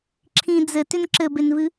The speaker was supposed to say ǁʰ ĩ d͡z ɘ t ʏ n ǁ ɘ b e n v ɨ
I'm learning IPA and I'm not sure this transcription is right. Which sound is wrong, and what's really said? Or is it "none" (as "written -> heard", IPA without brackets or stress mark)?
none